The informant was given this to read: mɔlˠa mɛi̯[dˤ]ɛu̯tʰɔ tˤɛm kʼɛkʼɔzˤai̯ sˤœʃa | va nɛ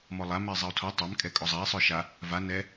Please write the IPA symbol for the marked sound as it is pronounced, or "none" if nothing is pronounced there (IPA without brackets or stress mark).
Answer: zˤ